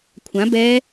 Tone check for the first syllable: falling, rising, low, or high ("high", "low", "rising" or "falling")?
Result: rising